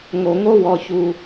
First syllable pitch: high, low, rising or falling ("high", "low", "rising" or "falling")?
low